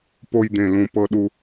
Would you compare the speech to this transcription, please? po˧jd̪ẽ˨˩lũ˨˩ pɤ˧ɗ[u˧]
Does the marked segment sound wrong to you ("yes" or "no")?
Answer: no